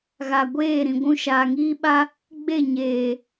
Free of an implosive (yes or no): no